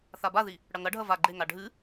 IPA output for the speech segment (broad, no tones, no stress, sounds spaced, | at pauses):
θ a b a ð i | ɽ ɐ ŋ ɐ ɖʱ ɐ v a ɡ͡ǃ e ŋ a ɖʱ ɨ